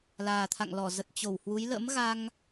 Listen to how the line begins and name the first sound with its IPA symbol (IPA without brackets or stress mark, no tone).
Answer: l